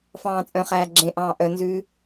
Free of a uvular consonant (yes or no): no